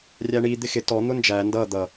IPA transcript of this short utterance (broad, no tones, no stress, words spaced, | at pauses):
rʲæɳi d̪ɪxɪ tɔ n̪ʊnd͡ʒæ ndʌ d̪ʌ